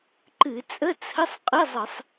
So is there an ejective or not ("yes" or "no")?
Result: yes